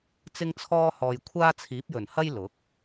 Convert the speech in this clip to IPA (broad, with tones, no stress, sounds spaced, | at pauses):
t͡s ɪ˥ ŋ t͡sʰ ɔː˥ h ɔː˧ j kʷʰ aː˥ t͡sʰ iː˨˥ p̚ j ɵ˨˩ n h ɐ˥ j l ʊ˨˥ k̚